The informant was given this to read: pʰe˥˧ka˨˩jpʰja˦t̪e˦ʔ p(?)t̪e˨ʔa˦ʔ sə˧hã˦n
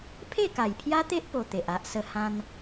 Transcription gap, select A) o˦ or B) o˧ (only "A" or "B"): B